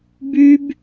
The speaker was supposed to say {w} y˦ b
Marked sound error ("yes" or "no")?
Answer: yes